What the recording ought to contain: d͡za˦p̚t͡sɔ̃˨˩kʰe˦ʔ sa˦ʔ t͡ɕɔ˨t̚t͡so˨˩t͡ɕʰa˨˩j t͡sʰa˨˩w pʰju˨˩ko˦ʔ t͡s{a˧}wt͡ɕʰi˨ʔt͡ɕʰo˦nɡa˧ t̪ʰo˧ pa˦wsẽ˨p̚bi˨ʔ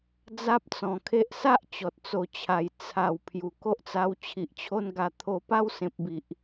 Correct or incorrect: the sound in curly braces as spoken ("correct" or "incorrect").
correct